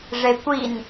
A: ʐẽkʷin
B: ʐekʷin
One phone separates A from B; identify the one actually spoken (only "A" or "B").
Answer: B